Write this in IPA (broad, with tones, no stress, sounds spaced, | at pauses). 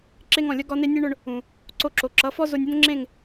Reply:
ǁ e˧ ŋ ɔ̃˨ lʲ ʌ˦ ɡ ɒ˦ n e˦ nʲ e˦ ɳ ʊ˧ ɳ | ũ˨ | ǀ o˧ ǁ o˨ ǁ ʌ˨˦ f ɔ˦ z o˧ nʲ ʊ˦ n ŋ͡ǁ ẽ˦˨ ŋ